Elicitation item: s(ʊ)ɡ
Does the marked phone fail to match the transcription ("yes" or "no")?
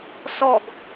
yes